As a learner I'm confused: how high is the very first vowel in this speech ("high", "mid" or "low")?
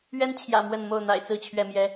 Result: mid